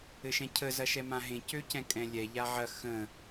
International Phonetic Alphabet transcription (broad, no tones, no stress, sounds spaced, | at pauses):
ɘ ʃ ɛ̃ cʰ ə z ɐ ʃ ɛ m ã ɦ ẽ c ø c ɛ̃ kʼ ɛ̃ lʲ ɛ ʎ a ʕ ɐ x ə̃